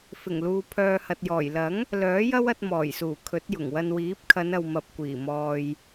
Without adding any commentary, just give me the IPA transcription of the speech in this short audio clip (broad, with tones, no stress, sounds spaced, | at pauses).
f ɪ˨˩ ŋ l uː˨ pʰ œː˨ h ɐ˨ t̚ j ɔː˨˩ j l ɐ˨˥ ŋ | l œː˨˥ j ɐ˥ w ɐ˧ t̚ m ɔː˨˩ j s uː˨˩ kʰ ɵ˨˥ t̚ j ʊ˨˩ ŋ w ɐ˧ n w iː˨˥ p̚ kʰ ɐ˨˧ n ɐ˨ w m ɐ˨ p̚ kʷ iː˨˩ m ɔː˨ j